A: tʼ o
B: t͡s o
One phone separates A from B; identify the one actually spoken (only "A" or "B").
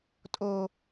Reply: A